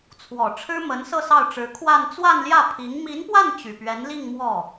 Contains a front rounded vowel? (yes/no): yes